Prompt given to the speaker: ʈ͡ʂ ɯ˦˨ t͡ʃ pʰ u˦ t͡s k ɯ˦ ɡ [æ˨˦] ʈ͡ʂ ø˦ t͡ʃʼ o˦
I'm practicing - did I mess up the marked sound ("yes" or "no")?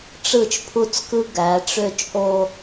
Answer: no